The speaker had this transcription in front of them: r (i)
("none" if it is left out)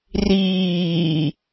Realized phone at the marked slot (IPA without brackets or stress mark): iː